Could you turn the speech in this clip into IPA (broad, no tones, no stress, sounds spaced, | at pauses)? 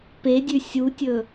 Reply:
p e dʲ ʉ sʲ u tʲ ɵ